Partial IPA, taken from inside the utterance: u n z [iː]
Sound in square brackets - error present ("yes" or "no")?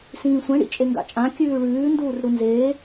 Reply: yes